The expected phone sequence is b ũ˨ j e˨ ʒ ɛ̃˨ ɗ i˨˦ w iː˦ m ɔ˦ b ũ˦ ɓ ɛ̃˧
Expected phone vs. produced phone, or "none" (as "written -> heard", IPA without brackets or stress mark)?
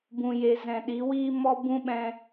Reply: ʒ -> z